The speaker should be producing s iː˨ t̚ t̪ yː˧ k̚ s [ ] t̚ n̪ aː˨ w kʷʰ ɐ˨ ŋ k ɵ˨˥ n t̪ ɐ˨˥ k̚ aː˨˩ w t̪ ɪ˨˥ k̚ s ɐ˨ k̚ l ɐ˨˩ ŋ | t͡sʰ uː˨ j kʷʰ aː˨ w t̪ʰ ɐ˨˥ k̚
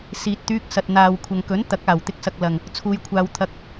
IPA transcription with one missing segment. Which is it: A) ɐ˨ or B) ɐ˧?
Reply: A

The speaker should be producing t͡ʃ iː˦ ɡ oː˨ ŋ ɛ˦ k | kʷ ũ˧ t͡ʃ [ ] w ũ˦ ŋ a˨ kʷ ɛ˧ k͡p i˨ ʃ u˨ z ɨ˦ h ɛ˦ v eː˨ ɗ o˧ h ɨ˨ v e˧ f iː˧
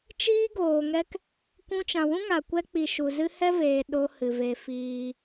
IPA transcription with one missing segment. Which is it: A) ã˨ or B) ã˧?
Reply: A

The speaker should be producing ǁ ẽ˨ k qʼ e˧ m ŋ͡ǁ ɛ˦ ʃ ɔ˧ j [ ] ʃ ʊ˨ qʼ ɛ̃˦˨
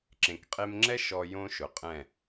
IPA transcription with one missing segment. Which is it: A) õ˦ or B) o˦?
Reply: A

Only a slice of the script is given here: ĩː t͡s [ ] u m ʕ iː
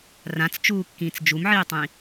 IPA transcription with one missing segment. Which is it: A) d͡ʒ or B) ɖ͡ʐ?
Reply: A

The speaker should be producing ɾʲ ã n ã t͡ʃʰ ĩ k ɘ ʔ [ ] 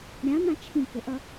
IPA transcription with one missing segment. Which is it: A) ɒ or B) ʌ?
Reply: B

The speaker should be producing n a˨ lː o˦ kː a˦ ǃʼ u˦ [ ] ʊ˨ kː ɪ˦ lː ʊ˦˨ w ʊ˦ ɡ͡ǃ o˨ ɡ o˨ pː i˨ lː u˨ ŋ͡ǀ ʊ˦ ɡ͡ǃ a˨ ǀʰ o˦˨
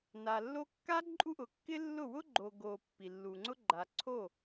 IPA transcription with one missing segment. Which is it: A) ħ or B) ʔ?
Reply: B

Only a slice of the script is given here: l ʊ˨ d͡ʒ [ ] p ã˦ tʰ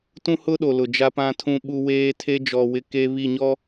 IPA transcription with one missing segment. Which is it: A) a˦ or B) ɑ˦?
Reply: A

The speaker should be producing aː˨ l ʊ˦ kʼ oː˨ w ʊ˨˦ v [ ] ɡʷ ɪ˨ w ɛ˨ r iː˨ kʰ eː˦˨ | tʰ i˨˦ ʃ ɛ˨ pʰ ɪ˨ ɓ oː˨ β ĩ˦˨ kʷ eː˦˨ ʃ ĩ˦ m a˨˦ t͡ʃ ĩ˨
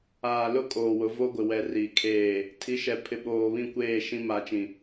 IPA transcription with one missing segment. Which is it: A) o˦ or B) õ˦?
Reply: A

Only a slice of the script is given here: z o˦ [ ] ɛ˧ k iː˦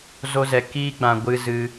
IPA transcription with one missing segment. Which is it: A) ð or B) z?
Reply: B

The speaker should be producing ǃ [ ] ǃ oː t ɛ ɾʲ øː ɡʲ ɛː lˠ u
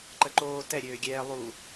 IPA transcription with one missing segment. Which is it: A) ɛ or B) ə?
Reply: B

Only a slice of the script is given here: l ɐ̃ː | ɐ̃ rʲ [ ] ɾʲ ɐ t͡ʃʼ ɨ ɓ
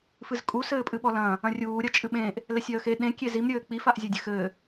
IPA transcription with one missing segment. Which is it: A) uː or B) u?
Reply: A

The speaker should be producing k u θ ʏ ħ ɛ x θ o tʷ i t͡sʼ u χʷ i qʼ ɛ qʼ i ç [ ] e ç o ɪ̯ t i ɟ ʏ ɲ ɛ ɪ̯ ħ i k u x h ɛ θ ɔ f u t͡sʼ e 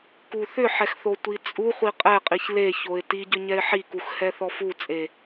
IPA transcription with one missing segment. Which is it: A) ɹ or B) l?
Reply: B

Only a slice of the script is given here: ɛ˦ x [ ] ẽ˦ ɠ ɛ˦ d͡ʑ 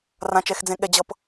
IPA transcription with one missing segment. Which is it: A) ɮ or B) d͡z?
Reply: B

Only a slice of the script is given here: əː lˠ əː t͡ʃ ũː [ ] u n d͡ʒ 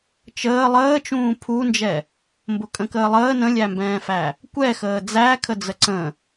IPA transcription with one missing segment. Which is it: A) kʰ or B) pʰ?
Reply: B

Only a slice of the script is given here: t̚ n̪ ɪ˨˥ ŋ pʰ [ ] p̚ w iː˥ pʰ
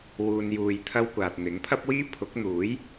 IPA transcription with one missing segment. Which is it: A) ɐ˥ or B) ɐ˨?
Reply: A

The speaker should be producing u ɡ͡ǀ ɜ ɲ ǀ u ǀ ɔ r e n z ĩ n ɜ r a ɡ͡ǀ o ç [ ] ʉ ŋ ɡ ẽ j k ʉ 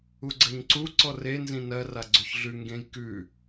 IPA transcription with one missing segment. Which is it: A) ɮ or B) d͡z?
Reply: A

